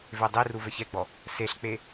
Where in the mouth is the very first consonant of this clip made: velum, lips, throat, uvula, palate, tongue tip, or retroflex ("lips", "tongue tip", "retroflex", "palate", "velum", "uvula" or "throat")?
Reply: lips